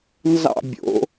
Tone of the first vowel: falling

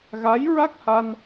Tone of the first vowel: rising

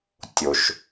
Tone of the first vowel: low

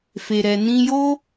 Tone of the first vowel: low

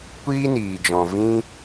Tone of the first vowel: high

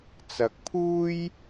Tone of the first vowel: low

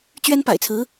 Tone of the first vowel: high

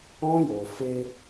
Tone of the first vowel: high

